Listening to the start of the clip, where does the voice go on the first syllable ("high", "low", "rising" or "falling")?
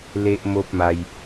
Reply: high